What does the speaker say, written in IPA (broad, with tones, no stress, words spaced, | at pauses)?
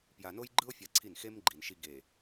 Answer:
pja˨no˦jɡ͡ǃɯ˦o̯ fʲa˦˨ǀʰi˦˨n xe˦mɡ͡ǃi˨n ʃi˦ ɡe˨